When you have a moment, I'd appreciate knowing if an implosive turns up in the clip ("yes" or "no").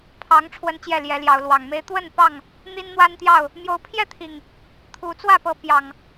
no